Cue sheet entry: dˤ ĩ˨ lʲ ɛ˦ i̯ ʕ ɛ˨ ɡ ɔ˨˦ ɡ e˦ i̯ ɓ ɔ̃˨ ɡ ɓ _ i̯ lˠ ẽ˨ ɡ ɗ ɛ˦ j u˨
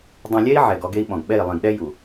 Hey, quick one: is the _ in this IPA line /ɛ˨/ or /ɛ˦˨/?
ɛ˦˨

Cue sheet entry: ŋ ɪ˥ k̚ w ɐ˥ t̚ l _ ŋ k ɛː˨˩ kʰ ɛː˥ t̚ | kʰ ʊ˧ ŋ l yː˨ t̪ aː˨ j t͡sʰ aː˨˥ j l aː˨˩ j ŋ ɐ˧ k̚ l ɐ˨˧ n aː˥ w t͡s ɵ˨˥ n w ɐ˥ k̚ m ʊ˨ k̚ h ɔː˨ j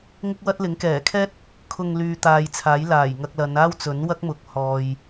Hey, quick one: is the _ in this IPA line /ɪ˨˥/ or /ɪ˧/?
ɪ˨˥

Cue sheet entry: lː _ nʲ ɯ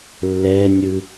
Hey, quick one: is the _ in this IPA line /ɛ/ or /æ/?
ɛ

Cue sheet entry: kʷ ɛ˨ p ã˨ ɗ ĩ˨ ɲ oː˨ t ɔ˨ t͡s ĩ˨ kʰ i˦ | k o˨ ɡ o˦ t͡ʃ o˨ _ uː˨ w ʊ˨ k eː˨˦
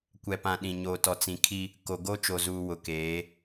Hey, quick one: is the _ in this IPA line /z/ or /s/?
z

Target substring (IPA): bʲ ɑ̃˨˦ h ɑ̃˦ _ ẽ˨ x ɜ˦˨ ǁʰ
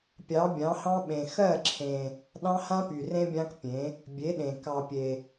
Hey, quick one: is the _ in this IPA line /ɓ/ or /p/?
ɓ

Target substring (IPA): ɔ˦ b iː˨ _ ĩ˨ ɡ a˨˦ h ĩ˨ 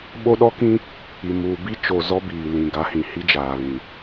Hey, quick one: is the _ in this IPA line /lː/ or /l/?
l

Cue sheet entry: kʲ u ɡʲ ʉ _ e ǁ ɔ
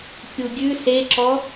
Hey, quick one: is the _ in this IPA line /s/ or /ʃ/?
s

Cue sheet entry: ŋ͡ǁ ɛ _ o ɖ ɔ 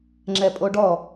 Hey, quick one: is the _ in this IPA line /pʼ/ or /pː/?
pʼ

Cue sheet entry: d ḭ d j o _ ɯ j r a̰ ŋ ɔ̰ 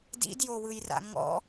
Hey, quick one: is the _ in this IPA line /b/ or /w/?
w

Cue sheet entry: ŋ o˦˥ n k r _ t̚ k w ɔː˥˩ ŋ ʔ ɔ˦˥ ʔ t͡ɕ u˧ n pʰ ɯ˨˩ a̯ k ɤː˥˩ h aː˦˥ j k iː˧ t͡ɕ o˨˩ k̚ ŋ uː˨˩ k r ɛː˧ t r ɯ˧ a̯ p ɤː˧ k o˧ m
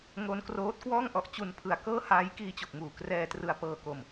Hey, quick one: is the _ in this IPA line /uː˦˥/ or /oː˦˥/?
oː˦˥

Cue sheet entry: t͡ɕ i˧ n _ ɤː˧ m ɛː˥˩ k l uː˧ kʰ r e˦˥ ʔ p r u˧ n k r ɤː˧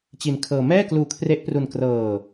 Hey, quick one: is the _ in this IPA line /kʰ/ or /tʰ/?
kʰ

